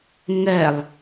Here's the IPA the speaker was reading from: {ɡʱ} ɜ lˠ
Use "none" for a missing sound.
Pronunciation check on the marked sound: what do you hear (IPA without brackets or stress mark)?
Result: ŋ